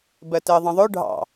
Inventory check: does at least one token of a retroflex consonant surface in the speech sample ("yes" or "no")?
yes